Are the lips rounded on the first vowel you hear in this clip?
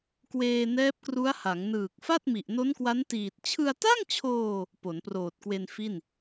no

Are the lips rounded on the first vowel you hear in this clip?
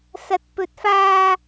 no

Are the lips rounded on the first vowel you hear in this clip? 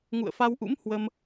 yes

